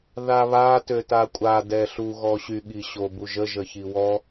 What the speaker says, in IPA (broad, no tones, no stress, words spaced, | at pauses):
ðaβa tøtakʷʼa dɛɬu ɣɔɕy ɠiɕobuʒə ʒəçiwɔ